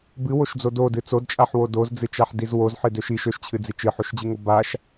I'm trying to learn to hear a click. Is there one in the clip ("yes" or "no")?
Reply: no